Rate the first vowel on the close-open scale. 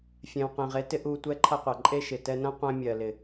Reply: mid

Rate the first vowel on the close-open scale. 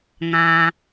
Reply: open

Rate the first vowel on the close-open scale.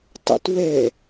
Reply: mid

